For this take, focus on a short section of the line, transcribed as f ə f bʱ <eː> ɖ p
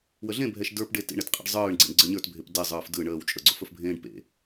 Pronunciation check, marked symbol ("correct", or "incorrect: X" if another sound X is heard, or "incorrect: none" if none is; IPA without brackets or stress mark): incorrect: ẽː